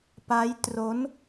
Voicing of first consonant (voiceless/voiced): voiceless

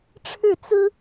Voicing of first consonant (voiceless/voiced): voiceless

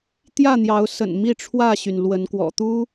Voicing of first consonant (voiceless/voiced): voiceless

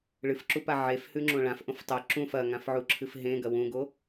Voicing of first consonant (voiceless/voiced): voiced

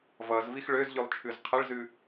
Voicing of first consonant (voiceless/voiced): voiced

